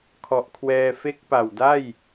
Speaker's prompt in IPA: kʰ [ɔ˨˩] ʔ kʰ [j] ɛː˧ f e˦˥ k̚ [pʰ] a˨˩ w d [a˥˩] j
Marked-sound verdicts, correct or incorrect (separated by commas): correct, incorrect, incorrect, correct